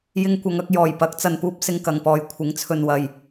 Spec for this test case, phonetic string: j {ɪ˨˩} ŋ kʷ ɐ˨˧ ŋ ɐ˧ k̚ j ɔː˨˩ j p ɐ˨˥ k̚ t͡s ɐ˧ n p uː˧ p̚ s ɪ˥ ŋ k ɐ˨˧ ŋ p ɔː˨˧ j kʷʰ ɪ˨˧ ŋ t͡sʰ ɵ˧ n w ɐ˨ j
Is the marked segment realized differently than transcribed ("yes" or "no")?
yes